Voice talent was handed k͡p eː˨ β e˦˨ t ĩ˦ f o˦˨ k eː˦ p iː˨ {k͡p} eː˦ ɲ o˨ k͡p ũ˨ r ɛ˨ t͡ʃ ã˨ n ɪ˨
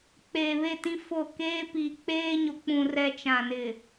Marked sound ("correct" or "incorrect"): correct